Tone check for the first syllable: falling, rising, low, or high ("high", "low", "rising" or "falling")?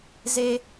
high